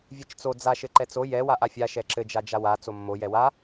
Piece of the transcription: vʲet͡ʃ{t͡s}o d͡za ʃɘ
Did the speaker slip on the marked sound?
no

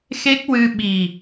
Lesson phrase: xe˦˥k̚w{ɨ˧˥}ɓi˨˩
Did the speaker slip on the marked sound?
yes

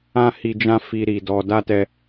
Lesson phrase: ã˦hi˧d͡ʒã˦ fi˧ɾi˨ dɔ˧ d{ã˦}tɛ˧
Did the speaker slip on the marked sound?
yes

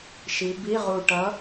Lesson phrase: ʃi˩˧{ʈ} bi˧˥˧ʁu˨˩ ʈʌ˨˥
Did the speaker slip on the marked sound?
yes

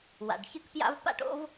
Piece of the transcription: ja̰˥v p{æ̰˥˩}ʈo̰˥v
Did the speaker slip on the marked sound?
yes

